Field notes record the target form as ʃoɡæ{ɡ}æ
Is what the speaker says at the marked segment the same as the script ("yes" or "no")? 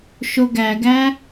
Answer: yes